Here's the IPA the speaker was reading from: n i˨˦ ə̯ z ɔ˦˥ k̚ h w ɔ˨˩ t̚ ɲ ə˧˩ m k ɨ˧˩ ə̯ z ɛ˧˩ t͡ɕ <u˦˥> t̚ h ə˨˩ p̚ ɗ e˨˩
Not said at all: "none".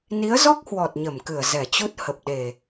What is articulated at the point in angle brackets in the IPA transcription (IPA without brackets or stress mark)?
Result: u˦˥